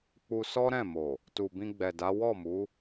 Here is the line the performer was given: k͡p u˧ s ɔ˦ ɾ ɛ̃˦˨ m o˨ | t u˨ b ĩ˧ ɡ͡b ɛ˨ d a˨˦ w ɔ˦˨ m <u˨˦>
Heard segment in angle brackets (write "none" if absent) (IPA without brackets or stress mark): u˨˦